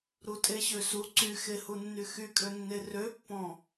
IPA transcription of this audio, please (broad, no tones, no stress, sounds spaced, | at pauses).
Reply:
ɾ u tʼ e ɕ ø s u ǀ y x e h u nː y x y kʼ ø nː e r ø pː ɔ̃